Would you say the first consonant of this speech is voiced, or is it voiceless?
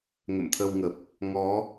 voiced